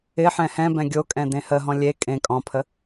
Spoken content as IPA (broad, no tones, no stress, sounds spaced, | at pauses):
ɪ ħ ɛ̃ h ɛ̃ b ɛ̃ ɡʲ o kʼ ɛ̃ d ẽ h ə ɦ ɔ̃ lʲ e kʼ ẽ kʼ ɔ̃ pʰ ə